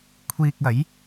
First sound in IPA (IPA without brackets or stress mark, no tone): kʷʰ